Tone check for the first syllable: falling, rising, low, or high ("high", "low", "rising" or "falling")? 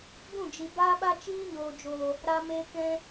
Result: falling